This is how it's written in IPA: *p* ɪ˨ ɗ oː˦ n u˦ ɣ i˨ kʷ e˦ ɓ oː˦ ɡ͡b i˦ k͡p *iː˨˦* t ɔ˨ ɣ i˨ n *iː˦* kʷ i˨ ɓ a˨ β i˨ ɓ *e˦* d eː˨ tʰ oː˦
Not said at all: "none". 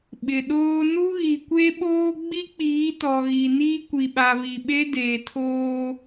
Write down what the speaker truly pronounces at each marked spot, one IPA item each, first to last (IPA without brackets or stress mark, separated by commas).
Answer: ɓ, iː˨˦, iː˦, e˦